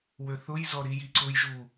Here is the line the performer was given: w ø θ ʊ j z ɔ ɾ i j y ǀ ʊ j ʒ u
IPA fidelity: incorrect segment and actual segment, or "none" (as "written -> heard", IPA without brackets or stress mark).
y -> i